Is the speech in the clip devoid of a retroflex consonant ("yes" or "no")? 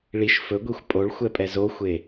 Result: no